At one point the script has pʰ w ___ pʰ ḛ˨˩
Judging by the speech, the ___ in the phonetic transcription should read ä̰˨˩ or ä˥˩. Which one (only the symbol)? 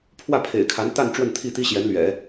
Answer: ä˥˩